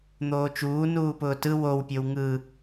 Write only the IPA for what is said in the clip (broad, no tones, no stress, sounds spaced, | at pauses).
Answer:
n̪ oː t͡ʃ uː n uː p ʊː t ɯ w o w pʲ o w ŋ ɯ